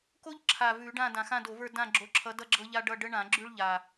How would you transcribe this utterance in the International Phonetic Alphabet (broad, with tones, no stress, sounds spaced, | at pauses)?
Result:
k o˦ ʎ ǁʰ a˨˩ v ʉ˧˩˧ ɖ ã˦˨ d ã˨˩ x ã˦˨ d o˧˩˧ v ə˞˦˨ d ã˦˨ ɡ͡ǁ o˨˦ ǁʰ ʌ˨˦ d ʌ˦ ɡ͡ǁ ɤ˦ ʎ a˦ ɖ ʌ˦˨ ɖ ə˦ ɳ ã˧˩˧ ɡ͡ǁ ʉ˦ ɭ ʎ a˨˩